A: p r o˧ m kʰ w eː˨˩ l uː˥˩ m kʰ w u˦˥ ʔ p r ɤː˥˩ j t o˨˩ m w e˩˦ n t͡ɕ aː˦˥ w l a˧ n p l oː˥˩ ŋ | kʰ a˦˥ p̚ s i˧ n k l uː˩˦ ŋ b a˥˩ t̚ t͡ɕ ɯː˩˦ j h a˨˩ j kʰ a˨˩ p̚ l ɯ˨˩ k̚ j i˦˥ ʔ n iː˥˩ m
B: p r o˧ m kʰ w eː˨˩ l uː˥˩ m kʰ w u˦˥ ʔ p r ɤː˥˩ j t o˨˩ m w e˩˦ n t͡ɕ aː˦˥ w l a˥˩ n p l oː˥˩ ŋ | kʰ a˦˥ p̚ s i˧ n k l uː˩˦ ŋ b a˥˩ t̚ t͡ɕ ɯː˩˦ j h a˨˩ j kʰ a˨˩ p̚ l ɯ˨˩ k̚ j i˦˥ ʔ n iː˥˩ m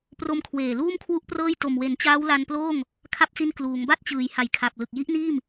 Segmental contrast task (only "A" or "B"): A